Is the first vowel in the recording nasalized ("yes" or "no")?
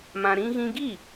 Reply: yes